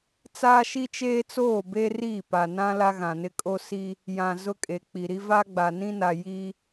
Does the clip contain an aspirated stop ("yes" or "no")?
no